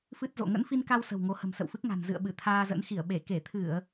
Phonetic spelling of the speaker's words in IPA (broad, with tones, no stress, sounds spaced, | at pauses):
f ɨ˦˥ t̚ z o̰˧˨ ŋ ə̰˧˥ n f i˧ n k a˧ w s ə̤˨˩ w ŋ o˨˦ h ə̤˨˩ m s ə̰˧˨ w f ɨ˦˥ k̚ ŋ a̤˨˩ n z ɨ̰˧˨ ə̯ ɓ ɨ˧˩ t̪ʰ aː˧ z ə̰˧˥ n x i˧˩ ə̯ ɓ e˧˩ k e˧˩ t̪ʰ ɨ˧˩˨ ə̯